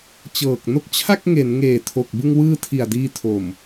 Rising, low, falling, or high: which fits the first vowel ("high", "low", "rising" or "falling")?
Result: low